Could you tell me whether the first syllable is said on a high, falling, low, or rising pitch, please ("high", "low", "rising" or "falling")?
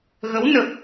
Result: rising